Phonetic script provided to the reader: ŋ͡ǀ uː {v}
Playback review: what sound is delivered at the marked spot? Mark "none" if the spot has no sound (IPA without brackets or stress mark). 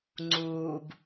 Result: b